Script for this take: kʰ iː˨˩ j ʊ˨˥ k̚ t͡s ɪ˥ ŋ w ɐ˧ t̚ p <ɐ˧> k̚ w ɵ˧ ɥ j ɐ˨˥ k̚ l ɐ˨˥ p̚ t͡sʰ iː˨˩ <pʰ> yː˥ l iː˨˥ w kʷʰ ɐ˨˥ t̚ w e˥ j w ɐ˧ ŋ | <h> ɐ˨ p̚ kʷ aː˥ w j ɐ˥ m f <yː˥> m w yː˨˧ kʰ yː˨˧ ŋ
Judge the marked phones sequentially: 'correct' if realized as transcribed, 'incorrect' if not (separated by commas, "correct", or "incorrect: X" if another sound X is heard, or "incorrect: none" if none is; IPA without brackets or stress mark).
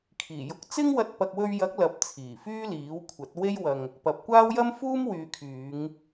incorrect: ɐ˨, incorrect: f, incorrect: p, incorrect: uː˥